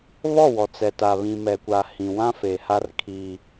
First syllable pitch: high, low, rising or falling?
falling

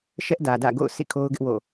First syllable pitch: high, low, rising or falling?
high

